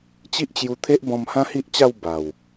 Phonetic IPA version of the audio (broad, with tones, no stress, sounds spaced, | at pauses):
t͡ɕ i˦ ʔ t͡ɕ j u˧ t̪ʰ e˦ ʔ b ɔ̃˧ m h ã˦ h i˦ ʔ t͡ɕ a˥˧ w b a˨˩ w